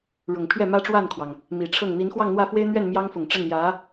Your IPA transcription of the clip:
ɻʊ˨˩ŋpʰɥɛ˥˩ mä˥ʈ͡ʂwa˥˩nkʰwɑ˩ŋ | mi˨˩ʈ͡ʂʰɤ˥˩ŋ n̪i˧˥nxwɑ˥˧ŋ n̪wä˥˩fwe˥ɪ̯n̪ɥɛ˥˩n mjɑ˥ŋfʊ˨˩ŋʈ͡ʂə˥˩n jä˧˥

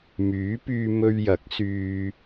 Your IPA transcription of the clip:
myː˨˥pyː˧mɵ˧ɥjɐ˨˥k̚ syː˧

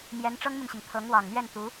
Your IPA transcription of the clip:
mjɛ˧˥nʈ͡ʂɤ˥ŋmy˨nɕi˩ŋ t̪ʰɤ˧˥ŋwɑ˨˩ŋ n̪ɥɛ˥˩n t̪u˧˥

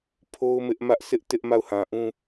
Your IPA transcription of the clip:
pʰo˦ʊ̯mɪ˦ʔ mä˦ʔsɪ˦ʔ tɪ˦ʔ ma˦˨ʊ̯hã˨ʔũ˦

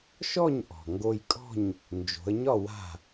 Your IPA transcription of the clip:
ʃɔ˥˨ɲʔɔ̤˩ ŋɡo˧jkʼɔ̤˥˨ɲ | nd͡ʒo̤˩˧ə̯ɲɒ˥˨ wa̤˥˨

